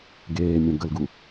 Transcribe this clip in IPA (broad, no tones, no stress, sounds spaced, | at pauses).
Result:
ɡ eː mʲ ə̃ ɡ ə l ɡ u